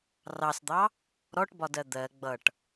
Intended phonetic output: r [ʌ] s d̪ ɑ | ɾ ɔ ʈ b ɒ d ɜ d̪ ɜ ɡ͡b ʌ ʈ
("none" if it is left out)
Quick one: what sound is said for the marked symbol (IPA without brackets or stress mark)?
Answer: ɑ